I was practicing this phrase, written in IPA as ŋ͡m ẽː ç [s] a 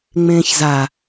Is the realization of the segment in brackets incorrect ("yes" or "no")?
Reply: yes